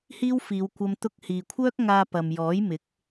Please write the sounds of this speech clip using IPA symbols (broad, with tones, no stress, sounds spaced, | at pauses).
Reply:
h iː˥ w f iː˨˧ w kʷ ɐ˧ m t̪ ʊ˧ k̚ h iː˨ kʷʰ œː˥ k̚ ŋ aː˧ p ɐ˨ m j ɔː˨˥ j m ɪ˨˥ k̚